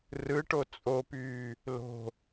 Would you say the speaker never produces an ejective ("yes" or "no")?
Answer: no